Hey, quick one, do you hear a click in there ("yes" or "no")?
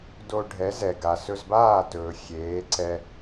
yes